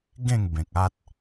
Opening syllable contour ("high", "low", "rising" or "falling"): falling